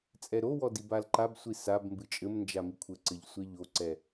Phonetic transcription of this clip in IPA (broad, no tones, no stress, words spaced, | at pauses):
t͡sʼɛɾowɔ dibalǃabsʷi sab mbɨt͡ʃʼɘmnd͡ʒa mikʷʰɘǀɘʎ sʷɛʎoǀɛ